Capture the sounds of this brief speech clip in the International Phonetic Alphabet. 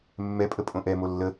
mː ɛ pʼ ə pʼ õ ʔ ɛ m o lː ə

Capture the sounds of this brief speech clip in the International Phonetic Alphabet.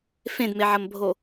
f ẽ d m e ʕ ɐ m bʱ o

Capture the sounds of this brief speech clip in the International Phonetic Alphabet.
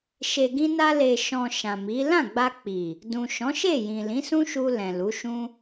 ʃ e˨ ɡ ĩ˧ n a˧ l e˨ ʃ ɔ̃˨ ʃ ã˨ m i˨˦ l ã˦˨ ɡ͡b a˧ k͡p i˨ | d ũ˨ ʃ ɔ̃˨˦ ʃ e˦˨ j ĩ˨ l ĩ˨˦ s ũ˦ ʃ u˧ l ɛ̃˨ l u˨˦ ʃ ũ˦

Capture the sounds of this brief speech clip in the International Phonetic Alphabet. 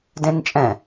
d ẽ n t͡ʃʼ ɛ̃

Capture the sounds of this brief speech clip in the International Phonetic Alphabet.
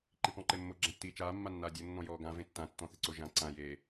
ǃ i p ɔ̃ ǃ e mː o ɡ͡ǁ ã tː iː t͡ʃ aː mː a nː aː dʲ o nː ɔ̃ j ɔː ɡ ã v ẽ tː ã tː ɔ̃ θ ɪ ǀ o ʒ ã ǀ ã j e

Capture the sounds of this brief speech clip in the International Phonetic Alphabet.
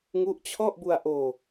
ŋ u˦˥ ʔ t͡ɕʰ ɔ˥˩ ʔ b u˧ a̯ ʔ oː˧

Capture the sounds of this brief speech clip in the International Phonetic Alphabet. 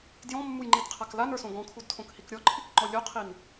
d j ɔ̃ mː u j ŋ͡ǃ i d qʰ a k l a n ə˞ s õ ɡ ɔ̃ kʰ u d tʰ õ k h i k ɾʲ ɔ ǃʰ i k ŋ͡ǃ ɔ lʲ o qʰ i n

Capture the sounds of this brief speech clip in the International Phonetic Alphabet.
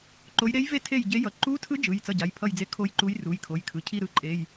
ǃ o˧˥ j ɾ e˧˥ j v e˦˨ tʰ e˦˨ j ɟ e˧˥ j ʌ˩˧˩ ǃ u˧˥ tʰ ɯ˧˥ d͡ʒ ɯ˩˧˩ j t͡s ʌ˦˨ ɟ a˩˧˩ j pʰ ʌ˦˨ j d͡z e˦˨ kʰ o˦˨ j ǃ u˧˥ j r u˩˧˩ j kʰ o˩˧˩ j kʰ ɯ˩˧˩ cʰ i˦˨ ɾ ɯ˦˨ ǃʼ e˩˧˩ j

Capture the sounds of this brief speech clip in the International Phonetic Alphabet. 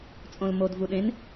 t͡sʼ õ l m o d v u ɗ ẽ n

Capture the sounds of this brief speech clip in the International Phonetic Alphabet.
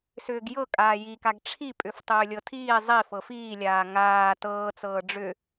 s ʏː ɡ j ɤ kʼ aː j i k a ɡ ʈ͡ʂʰ i pʼ ʏ f tˤ ʏː lʲ ɤ tʰ iː zˤ i f ɤ f iː lʲ aː ŋ aː t ɤː t͡s ɤː ɖ͡ʐ ʏ

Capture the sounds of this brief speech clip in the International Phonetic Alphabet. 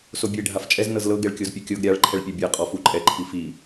s o bʲ e ɖʱ a f t͡ʃʼ ɛ z n ɤ z l ɤ ɡ ɛ ɭ kʲ o z pʲ o kʲ ɤ ɡ ɾʲ a ɭ ǃʰ ɛ ɭ pʲ ɛ bʲ a qʼ ɔ f u ǃʼ ɛ ǃʰ i f i

